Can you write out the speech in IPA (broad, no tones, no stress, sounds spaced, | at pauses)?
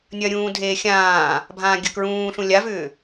nʲ ɐ ɾʲ ũː dʱ eː xʲ ãː | bʱ ãː ɡʲ ɐ k ɹ ũː ɬ ũ lʲ a v ʏː